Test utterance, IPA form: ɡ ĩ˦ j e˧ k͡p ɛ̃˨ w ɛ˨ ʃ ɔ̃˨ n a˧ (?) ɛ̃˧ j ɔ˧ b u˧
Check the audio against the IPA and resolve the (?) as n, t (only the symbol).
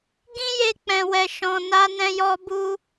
n